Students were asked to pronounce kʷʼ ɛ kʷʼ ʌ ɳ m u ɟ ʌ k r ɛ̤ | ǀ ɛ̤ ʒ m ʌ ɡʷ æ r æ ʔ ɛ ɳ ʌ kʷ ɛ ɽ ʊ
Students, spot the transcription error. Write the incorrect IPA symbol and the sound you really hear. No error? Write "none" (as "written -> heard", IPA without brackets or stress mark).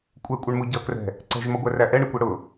none